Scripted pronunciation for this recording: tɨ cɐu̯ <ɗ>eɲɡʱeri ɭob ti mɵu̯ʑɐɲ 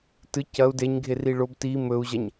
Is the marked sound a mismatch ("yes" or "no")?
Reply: yes